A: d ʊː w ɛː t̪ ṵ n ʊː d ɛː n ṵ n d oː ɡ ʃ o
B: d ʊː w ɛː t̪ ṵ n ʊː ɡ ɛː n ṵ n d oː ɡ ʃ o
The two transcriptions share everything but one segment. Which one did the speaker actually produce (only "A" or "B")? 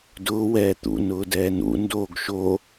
A